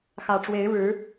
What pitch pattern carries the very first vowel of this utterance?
low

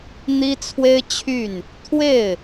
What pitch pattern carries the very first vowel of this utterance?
high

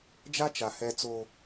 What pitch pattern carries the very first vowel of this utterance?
high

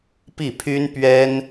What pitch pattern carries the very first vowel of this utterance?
falling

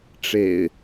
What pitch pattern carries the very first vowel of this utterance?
low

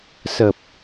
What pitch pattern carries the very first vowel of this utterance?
low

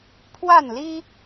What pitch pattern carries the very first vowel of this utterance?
falling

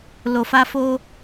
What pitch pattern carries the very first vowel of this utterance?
low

